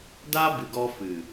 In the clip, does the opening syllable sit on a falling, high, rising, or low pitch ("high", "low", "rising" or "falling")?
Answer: high